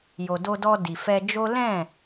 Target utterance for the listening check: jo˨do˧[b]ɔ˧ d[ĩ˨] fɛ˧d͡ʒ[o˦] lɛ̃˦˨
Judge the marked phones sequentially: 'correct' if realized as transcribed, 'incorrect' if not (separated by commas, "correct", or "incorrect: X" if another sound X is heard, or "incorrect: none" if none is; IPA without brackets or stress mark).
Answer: incorrect: d, incorrect: i˨, correct